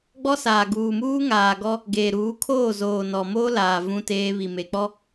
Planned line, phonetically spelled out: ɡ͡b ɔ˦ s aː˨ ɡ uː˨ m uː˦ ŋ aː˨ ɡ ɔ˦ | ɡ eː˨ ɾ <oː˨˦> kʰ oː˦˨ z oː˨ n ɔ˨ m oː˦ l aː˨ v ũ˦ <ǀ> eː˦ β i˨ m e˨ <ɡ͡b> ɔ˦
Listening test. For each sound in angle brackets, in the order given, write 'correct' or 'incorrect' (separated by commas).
incorrect, incorrect, incorrect